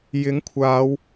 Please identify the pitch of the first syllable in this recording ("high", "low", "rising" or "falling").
rising